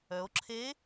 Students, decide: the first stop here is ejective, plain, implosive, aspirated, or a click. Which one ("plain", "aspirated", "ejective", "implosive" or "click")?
click